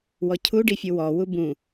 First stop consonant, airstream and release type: aspirated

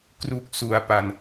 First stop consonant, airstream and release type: plain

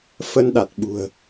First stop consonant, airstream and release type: implosive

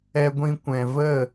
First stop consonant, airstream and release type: plain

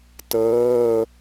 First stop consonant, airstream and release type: plain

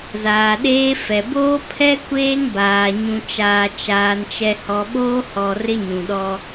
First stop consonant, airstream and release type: implosive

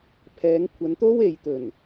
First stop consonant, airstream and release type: aspirated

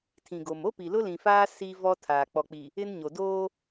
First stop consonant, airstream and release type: aspirated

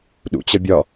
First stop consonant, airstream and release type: implosive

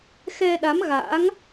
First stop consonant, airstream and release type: implosive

